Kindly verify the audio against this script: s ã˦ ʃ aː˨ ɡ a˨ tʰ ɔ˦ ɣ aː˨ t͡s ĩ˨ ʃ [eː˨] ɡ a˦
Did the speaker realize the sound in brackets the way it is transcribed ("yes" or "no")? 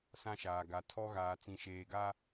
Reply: yes